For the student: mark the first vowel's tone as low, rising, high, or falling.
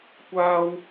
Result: high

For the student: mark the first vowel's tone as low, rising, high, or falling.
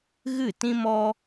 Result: falling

